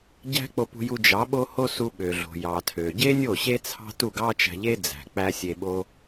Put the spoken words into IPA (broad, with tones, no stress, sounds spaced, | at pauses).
ɟ æ̤˦ k͡p o˧ p ṳ˧ j u˧ d͡ʒ ɑ˨˦ ɓ o˦ h o˦ s u˧ ɓ ø˨ ɮ o̤˨ j ɑ˨ tʰ ø˨ ɟ e˦ nʲ o˦˨ ɕ e˦ t͡sʰ ɑ̤˦ t u˦˨ ɡ ɑ˦ t͡ʃ æ̤˧ ʎ e˦ d͡z æ̤˨ k͡p æ˦ sʲ e˧ ɓ o˦